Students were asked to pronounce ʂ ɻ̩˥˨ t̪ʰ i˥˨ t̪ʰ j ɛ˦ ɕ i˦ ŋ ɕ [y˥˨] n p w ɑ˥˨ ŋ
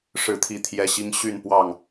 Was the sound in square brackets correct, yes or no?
yes